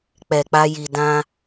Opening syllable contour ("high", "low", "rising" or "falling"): low